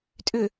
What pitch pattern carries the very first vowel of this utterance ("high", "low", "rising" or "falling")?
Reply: low